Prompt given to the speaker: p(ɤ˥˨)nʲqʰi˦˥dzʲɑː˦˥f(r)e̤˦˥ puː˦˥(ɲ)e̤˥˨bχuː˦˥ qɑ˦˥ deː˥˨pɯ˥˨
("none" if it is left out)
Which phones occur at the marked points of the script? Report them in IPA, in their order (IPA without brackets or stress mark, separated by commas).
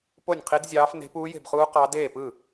o˥˨, n, j